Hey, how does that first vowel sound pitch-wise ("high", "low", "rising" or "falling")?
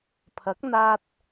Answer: rising